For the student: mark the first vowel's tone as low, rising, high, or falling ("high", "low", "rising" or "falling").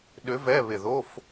rising